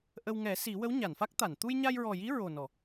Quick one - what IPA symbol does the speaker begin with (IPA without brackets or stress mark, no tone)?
ʔ